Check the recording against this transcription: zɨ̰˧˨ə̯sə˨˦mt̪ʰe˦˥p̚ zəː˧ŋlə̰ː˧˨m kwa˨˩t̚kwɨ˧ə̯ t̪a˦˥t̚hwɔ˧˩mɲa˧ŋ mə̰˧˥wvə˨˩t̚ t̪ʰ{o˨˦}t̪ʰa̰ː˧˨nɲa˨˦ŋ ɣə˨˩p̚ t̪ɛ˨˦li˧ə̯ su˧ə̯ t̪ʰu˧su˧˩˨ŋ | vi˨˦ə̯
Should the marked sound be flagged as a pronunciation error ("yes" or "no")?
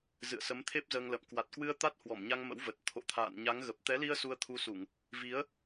yes